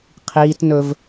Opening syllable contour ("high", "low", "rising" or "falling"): high